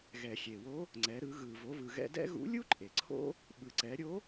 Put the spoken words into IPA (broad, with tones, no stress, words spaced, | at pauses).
ɣɛ˩xʲe˩wo˧˥ | ŋ͡ǀɛ˩˧ɾɯ˩˧ ɣɯ˩ vo˩˧vɯ˩ɣɛ̰˧ dɛ̰˥ ɣṵ˧˥lʲu˥ǃʼe˩ ǀʰo̰˥ | ɓɯ˩ǀɛ˩˧ɾʲo˧˥